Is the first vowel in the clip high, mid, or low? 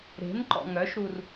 mid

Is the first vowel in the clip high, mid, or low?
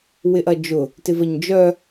high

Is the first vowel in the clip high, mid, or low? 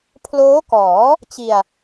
mid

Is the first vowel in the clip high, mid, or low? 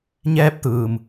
mid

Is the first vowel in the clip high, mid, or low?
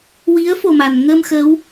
high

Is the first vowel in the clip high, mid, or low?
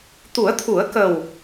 high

